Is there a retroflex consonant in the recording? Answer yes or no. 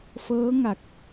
no